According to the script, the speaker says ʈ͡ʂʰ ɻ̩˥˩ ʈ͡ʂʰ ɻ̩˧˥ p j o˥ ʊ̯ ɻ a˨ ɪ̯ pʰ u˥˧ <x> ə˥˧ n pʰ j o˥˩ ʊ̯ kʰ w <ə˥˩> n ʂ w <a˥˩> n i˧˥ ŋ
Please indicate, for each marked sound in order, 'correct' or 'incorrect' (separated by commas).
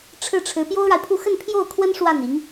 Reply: correct, incorrect, correct